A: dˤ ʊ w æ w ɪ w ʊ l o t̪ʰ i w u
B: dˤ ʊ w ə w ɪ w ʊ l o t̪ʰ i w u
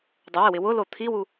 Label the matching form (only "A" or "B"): B